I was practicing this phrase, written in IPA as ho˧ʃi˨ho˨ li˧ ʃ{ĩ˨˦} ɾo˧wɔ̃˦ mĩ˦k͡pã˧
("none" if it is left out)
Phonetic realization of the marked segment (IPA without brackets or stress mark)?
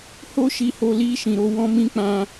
ĩ˨